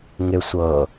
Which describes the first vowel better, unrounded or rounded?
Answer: unrounded